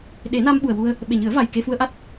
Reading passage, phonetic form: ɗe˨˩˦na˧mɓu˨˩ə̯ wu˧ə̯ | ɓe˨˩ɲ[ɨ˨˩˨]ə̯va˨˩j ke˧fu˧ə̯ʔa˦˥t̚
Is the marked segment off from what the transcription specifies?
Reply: yes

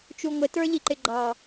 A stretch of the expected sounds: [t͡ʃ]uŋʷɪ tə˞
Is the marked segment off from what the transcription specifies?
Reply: no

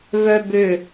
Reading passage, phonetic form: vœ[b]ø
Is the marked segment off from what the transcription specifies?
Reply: no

